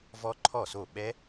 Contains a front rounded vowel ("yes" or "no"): no